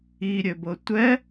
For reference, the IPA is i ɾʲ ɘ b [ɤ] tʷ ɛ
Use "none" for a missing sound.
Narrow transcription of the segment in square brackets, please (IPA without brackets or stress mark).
ɤ